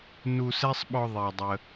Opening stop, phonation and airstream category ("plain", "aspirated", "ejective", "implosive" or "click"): implosive